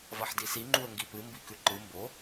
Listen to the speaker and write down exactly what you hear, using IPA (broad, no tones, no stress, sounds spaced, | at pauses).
v ɐ ħ d i s i ŋ͡ǃ u ə̯ ŋ ɡ i p ɨ m b i k ʉ ǃ ɨ m b o